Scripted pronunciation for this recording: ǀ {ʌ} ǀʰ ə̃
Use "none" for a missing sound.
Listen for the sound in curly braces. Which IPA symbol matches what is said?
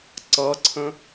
ʌ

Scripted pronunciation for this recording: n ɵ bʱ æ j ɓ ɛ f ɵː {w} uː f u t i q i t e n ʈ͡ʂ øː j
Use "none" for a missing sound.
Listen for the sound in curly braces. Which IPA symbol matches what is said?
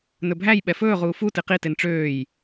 ʁ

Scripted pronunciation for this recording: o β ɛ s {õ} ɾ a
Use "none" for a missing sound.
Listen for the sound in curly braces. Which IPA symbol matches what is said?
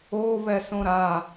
õ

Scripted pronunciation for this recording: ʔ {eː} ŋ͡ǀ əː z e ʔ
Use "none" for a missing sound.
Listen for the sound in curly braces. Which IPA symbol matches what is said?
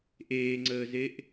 eː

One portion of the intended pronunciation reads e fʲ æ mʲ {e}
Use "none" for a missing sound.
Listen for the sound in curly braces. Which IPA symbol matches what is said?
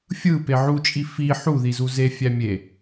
e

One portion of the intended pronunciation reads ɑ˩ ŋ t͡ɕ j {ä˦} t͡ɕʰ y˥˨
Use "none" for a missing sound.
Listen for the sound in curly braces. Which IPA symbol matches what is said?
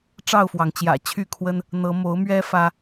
ä̰˨˩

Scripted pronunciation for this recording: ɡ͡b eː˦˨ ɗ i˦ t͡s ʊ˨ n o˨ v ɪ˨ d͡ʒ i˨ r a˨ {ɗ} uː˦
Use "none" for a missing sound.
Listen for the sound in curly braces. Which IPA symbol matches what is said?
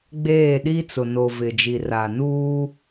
n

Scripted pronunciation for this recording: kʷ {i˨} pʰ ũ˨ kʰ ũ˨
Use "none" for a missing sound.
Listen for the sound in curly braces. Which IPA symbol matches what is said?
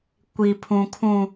i˨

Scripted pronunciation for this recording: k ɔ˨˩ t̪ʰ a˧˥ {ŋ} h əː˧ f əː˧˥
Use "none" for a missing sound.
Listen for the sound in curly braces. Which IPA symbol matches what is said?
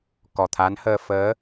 n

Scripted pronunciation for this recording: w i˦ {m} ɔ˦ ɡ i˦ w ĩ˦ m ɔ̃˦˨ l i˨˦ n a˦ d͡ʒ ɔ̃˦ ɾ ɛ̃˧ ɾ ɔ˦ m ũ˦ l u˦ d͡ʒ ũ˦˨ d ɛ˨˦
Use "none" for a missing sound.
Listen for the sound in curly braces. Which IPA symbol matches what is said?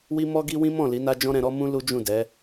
m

